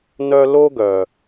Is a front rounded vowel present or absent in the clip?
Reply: present